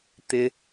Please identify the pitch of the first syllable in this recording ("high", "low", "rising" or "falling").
high